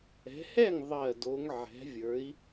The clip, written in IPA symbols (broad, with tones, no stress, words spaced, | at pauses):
ɛ̤˨˦hɛ˥˨ŋ ðˤɜ˨˩ do˨˦ŋ ʕɛ̤˨˦vʲə˞˨˦i̯